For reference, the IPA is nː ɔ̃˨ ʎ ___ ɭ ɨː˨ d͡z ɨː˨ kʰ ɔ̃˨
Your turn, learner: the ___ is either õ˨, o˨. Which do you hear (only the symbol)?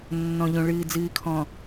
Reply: õ˨